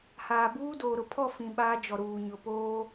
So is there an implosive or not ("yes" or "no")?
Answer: yes